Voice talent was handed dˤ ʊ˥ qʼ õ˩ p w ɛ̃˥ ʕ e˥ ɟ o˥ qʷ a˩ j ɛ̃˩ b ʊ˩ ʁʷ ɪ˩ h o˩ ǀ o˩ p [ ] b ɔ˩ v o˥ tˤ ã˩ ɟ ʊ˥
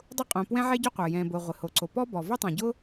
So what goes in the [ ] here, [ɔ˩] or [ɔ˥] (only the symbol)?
ɔ˥